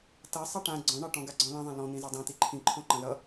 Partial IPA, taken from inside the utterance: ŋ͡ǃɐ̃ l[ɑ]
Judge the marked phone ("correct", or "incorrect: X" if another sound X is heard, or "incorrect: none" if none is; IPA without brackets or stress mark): incorrect: ʌ